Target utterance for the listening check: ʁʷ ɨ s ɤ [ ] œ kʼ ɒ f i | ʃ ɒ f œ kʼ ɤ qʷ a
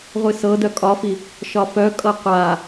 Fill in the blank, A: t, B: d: B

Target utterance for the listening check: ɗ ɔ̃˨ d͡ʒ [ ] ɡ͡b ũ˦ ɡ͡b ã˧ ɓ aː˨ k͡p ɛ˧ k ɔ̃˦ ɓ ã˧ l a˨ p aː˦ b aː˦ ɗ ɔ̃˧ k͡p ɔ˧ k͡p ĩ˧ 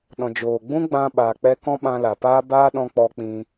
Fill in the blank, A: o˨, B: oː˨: B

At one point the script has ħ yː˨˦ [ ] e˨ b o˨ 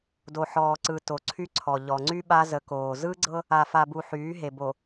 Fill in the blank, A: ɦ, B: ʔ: A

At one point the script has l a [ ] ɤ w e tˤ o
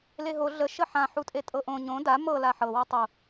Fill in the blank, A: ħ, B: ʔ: A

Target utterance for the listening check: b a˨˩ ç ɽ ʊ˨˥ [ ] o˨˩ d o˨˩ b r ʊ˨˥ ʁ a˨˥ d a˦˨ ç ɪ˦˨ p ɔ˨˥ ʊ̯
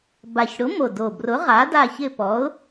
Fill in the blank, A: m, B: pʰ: A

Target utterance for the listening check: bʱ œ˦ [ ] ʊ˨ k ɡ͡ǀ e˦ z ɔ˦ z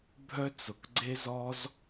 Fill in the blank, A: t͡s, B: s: A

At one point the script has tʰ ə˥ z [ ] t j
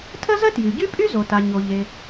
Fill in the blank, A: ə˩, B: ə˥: B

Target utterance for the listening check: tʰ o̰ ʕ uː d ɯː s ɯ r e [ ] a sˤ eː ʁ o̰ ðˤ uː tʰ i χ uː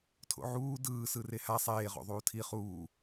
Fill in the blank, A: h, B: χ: A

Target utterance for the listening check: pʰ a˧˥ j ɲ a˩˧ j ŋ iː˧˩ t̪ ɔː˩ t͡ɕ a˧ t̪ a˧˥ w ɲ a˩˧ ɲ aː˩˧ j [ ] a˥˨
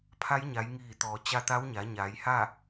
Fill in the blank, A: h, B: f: A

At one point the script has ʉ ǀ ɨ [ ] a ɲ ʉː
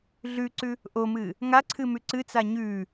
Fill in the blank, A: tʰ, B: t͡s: B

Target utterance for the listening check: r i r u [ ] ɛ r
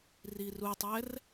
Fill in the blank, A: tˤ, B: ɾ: A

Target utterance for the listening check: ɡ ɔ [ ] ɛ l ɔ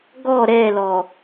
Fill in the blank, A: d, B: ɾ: B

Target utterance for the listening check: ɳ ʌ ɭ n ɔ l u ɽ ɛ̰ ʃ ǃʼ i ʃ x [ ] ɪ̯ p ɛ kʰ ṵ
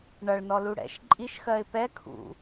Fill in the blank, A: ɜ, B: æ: A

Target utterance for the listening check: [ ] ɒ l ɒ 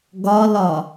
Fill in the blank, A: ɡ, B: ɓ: A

